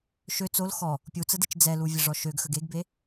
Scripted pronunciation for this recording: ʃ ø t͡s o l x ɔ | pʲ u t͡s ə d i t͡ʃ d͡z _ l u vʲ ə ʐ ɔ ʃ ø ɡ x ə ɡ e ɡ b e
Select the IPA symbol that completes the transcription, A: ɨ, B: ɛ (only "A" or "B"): B